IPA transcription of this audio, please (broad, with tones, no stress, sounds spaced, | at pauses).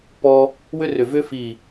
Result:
p ɔ˧ | w ʏ˥ r ʏ˧˩ v ʏ˥ f i˧˩